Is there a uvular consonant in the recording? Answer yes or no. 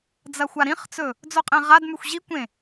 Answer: yes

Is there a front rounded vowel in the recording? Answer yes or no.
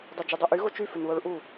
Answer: yes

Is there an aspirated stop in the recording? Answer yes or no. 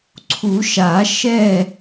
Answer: yes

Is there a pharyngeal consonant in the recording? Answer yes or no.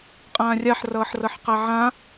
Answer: yes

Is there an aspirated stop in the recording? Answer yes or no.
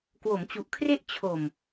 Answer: yes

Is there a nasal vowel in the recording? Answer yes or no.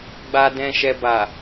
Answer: yes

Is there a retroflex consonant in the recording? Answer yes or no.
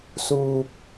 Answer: no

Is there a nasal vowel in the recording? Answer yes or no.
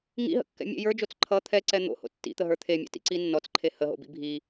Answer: no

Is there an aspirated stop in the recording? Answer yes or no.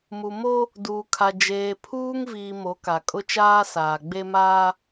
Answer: yes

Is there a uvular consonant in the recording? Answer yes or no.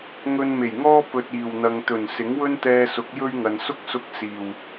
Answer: no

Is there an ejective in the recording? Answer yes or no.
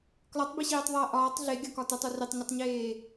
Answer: no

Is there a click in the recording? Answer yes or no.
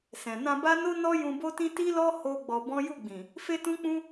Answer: no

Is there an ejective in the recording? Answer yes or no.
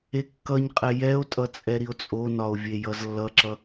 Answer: yes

